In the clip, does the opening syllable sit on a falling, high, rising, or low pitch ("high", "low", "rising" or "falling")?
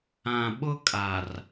low